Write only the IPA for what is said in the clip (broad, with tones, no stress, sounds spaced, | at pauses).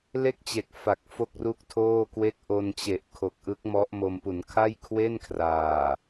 l e˥˩ k̚ t͡ɕ e˨˩ k̚ f a˨˩ k̚ f o˥˩ k̚ r u˥˩ k̚ tʰ oː˥˩ k w e˥˩ k̚ ʔ o˧ n t͡ɕ e˨˩ ʔ kʰ o˨˩ k̚ ʔ ɯ˦˥ k̚ m ɔ˦˥ ʔ m o˧ m p u˩˦ n kʰ a˥˩ j kʰ w e˥˩ n kʰ r aː˨˩